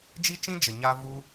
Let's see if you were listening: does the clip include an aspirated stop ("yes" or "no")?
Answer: no